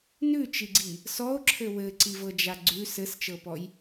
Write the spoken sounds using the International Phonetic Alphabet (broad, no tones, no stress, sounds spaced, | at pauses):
n ʉ t͡ʃ i ɡ͡ǀ i | s ɔ o̯ ǁʰ ɘ w ɘ ǀ i v ɤ d͡ʒ a ɡ͡ǀ ʉ s ɘ s t͡ʃ ɤ p ɔ j